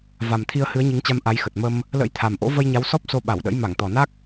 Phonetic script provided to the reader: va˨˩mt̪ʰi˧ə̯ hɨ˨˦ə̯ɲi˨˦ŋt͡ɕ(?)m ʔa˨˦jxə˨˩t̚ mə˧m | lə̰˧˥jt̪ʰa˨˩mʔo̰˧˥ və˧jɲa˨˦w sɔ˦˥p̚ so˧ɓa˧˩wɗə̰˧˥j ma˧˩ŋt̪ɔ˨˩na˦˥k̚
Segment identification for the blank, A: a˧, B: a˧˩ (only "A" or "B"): A